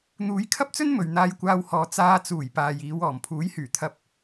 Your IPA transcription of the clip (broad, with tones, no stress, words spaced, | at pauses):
n̪uː˨˧jkʰɐ˥p̚t͡sɵ˥n mɵ˨ɥn̪aː˧jkʷaː˧whɔː˨˧ t͡saː˧t͡suː˨˩j paː˨jiː˨˧wɔː˨˩m pʰuː˨˥jhyː˨˩ t̪ʰɐ˧p̚